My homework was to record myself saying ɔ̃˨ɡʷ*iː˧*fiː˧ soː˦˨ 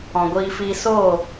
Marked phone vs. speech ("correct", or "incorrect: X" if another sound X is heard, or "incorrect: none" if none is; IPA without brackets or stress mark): correct